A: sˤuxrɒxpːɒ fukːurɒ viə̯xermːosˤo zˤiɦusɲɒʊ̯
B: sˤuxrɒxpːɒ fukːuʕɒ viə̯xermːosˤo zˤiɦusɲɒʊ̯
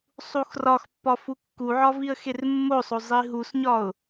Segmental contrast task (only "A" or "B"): B